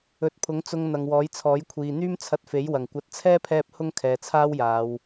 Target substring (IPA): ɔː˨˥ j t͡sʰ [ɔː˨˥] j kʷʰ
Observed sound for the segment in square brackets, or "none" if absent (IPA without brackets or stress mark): ɔː˨˥